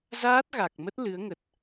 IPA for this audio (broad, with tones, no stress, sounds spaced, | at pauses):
z aː˦˥ t̚ ɣ a˨˩ k̚ m ə˦˥ t̚ l ɨ˨˦ ə̯ ŋ ə˨˩ t̚